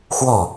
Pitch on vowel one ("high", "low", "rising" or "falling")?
falling